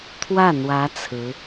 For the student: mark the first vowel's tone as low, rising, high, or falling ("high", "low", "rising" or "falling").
falling